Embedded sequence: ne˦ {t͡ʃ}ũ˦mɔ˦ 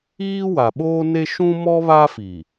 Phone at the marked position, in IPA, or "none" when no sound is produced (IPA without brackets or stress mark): ʃ